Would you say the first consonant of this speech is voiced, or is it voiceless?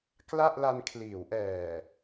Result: voiceless